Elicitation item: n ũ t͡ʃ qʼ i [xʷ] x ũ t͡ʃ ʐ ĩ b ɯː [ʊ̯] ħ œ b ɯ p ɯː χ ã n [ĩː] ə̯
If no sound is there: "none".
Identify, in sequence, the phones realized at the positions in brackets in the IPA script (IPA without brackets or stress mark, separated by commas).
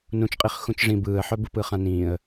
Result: χ, ə̯, ĩː